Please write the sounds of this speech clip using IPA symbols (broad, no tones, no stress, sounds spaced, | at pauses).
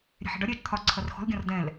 ɾʲ ɛ̤ ħ ɛ̤ ɖ ɒ ɾʲ ɛː t͡ʃ t̪ʰ ɒ ǀʰ ʌ r x ɔ̤ l ɡʲ ɔ̃ r d ɛ̃ l